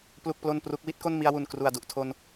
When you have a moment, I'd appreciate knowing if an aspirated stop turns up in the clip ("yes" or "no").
yes